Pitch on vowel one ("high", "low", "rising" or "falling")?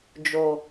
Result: low